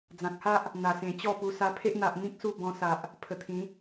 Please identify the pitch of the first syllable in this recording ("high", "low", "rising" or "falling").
low